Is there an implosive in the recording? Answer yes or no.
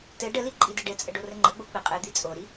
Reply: no